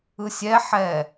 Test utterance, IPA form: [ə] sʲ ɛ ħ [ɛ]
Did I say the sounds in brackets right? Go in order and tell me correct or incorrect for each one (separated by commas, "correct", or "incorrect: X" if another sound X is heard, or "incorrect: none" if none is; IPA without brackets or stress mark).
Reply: incorrect: ɯ, correct